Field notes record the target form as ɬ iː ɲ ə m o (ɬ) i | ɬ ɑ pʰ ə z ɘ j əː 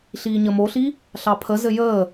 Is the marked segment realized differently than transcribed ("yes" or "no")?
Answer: no